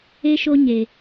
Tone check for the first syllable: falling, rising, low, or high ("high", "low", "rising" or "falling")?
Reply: high